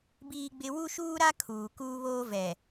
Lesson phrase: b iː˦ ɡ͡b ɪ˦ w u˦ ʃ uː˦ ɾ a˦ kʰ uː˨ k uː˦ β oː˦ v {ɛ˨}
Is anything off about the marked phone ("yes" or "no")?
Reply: no